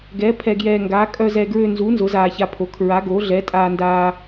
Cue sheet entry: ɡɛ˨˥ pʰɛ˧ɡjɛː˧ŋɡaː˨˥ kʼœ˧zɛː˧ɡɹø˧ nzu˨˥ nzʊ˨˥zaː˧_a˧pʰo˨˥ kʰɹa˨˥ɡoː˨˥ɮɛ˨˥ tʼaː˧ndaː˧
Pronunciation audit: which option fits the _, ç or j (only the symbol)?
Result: ç